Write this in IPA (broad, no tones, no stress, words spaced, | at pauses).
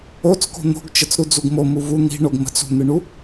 ot͡sko̤ n̪o̤ɡt͡ʃət͡s ɾud͡zuɡmo muvu n̪i̤ ɳoɡmə̤t͡s ṳn̪ɯɳu